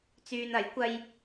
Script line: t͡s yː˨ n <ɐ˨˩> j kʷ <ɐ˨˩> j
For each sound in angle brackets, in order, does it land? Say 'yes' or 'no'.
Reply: no, no

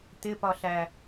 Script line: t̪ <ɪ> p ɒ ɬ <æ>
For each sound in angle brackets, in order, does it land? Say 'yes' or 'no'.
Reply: yes, yes

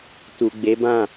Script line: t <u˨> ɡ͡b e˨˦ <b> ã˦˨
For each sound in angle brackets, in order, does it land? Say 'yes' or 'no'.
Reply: yes, yes

